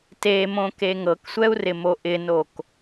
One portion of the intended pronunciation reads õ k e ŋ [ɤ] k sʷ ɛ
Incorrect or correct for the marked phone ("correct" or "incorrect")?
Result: correct